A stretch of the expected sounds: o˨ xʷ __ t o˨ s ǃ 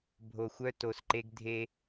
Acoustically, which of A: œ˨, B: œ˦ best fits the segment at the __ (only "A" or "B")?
B